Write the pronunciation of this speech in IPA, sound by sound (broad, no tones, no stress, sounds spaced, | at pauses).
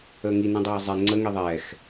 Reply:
əː ŋ i n ĩ dˤ eː zˤ e ŋ͡ǀ ə ŋ i ðˤ ɛː x